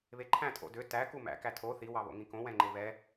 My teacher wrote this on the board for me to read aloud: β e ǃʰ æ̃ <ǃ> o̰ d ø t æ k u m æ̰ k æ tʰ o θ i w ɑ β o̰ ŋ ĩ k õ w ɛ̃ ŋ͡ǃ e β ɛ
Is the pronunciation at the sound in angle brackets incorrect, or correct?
incorrect